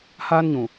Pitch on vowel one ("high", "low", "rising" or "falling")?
high